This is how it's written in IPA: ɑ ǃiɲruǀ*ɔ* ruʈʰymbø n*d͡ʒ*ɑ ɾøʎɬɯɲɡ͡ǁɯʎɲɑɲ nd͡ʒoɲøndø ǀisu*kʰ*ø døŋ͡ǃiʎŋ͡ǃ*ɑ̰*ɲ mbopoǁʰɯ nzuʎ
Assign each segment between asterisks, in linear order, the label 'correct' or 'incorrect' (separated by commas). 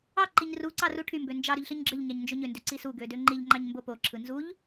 incorrect, correct, incorrect, incorrect